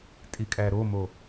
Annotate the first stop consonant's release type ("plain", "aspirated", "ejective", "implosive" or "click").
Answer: ejective